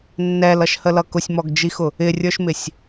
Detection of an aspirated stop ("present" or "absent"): absent